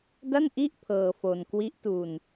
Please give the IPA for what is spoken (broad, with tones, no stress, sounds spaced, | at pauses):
d a˥˩ n ʔ i˥˩ ʔ pʰ ɤː˧ f o˧ n k w i˦˥ ʔ t u˧ n